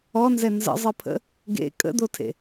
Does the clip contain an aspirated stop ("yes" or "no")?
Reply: yes